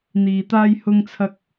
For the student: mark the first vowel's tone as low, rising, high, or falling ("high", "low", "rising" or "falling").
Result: low